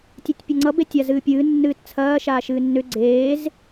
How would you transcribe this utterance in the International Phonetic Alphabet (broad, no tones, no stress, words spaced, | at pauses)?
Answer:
tʲetʲpʲʌŋ͡ǀʌ betʲazɨːpʲɨː nːɨːtt͡sʰɐː ʃaːʃɨːnːʏ ɡ͡ǀeːz